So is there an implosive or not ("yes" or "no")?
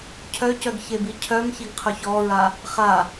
no